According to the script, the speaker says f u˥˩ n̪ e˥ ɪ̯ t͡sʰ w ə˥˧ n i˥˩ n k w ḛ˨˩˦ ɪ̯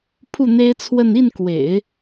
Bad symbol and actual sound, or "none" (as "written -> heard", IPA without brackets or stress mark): f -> pʰ